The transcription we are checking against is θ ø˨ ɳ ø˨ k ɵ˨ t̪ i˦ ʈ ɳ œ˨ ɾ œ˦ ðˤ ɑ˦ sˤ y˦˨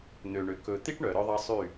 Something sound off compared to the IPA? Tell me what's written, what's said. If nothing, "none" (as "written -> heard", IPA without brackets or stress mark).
θ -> n̪